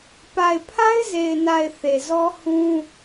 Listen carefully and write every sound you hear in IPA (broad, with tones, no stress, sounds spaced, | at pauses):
p a˨ ɪ̯ pʰ a˦ ɪ̯ z e˨ ɪ̯ n a˨ ɪ̯ θ e˨ z ɔ˦ h ũ˦